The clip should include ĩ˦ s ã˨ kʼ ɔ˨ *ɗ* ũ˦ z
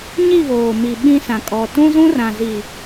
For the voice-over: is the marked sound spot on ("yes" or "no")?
no